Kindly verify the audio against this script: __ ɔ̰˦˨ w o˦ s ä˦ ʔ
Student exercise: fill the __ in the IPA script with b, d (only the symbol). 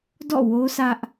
d